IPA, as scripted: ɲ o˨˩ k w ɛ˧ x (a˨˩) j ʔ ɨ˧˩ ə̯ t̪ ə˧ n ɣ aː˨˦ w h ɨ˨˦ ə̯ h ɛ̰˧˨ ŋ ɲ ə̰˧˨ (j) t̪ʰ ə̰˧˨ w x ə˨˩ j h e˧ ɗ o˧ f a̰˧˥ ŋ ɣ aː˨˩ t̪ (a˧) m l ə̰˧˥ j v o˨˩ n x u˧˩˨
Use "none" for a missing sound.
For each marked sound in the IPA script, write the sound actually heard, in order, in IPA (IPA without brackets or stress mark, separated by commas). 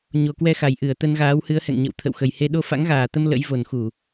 a˨˩, w, ə˧